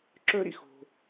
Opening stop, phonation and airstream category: click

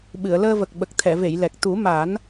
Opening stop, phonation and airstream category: implosive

